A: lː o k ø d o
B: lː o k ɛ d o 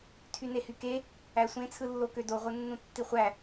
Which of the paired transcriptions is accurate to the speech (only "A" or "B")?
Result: A